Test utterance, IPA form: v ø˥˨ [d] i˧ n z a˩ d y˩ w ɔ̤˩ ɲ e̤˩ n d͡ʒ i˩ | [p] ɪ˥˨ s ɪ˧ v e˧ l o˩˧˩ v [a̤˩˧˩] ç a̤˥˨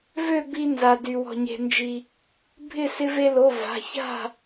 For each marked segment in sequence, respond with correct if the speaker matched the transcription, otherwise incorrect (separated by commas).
incorrect, incorrect, correct